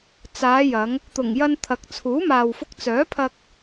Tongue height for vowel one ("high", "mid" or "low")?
low